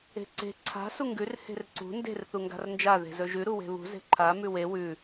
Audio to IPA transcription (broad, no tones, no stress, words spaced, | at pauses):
e̤ǀe̤ ǀʰa̤ suŋɡʉr he̤rǀṳ nde̤r θuŋɡa̤rnd͡ʒa ðe̤zɵʒʉ ɾuwe̤βṳ ze̤ǃʰa mʉwe wʉ